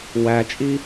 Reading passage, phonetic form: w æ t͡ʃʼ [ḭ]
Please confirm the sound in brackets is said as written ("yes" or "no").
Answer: no